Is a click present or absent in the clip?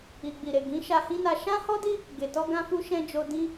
absent